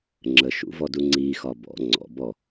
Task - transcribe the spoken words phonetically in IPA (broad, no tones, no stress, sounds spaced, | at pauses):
ŋ͡ǁ ə ʃ ṵ v ɔ d u ŋ͡ǀ i x ɒ b ɔ̰ ŋ͡ǀ ɔ̰ b ɔ